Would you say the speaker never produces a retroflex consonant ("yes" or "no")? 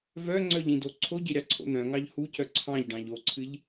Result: no